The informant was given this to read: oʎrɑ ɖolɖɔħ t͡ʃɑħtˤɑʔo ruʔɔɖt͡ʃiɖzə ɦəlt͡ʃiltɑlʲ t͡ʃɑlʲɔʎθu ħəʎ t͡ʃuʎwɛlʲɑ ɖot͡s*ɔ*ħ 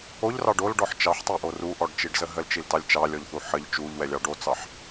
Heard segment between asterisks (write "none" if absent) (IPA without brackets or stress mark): ɑ